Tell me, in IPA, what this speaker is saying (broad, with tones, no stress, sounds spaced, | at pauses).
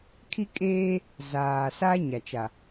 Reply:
kʰ i˦ kʼ eː˦ | z aː˨ s a˦ ɲ a˨ t͡ʃ a˨